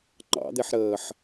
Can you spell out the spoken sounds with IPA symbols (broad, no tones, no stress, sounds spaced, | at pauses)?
ŋ͡ǃ ɑ̰ d̪ e ħ ɾ əː ħ